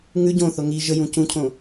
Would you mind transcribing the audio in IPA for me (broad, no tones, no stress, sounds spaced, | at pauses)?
ŋ ʉ ɟ õ θ o ŋ i ʒ ə j ũ c ũ cʰ õ